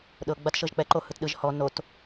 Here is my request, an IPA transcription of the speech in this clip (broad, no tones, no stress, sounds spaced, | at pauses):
ɗ ɤ ɡ͡b a t ʃ ɤ ʒ k͡p ɛ ǃ o h ɯ t ɗ ɯ ʒ h ɔ n o t